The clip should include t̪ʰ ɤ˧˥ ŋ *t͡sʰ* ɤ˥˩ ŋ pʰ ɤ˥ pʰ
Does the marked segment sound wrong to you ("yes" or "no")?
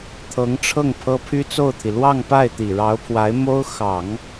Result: yes